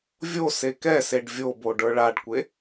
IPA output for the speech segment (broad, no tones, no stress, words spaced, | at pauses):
vʲo sekɛseɖ vʲobo ɖə˞ɭaɖkʷe